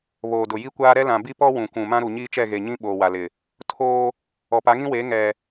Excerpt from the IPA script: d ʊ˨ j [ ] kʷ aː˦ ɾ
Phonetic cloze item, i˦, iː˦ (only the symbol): i˦